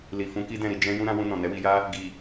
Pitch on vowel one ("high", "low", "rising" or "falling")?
low